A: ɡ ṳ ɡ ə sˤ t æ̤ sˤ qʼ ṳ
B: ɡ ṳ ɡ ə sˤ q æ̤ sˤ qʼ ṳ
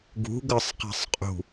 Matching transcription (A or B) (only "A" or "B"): B